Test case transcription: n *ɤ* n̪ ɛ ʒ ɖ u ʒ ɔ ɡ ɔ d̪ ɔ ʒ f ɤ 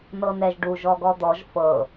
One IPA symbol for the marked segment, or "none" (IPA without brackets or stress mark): ɤ